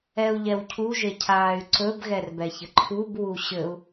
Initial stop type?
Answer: aspirated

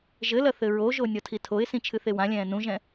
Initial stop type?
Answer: aspirated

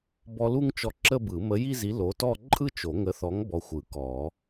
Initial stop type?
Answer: plain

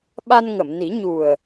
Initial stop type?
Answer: implosive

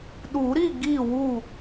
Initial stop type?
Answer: implosive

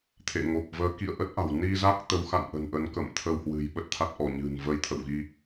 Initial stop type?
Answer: aspirated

